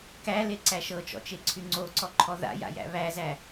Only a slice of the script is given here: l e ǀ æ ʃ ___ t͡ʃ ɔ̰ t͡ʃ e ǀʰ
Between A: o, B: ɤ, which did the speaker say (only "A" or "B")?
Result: B